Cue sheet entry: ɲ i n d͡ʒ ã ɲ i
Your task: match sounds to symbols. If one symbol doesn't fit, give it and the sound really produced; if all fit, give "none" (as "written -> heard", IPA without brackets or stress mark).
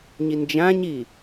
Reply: none